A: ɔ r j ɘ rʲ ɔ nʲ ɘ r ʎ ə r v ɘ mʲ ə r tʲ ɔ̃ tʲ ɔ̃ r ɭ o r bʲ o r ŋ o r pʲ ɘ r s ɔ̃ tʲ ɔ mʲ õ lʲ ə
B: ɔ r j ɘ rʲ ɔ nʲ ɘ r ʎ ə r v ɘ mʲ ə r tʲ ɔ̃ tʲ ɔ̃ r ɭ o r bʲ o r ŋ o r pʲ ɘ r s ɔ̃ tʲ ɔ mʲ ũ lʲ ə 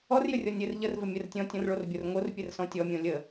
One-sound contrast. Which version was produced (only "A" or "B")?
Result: A